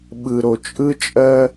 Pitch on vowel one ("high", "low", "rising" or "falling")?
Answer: low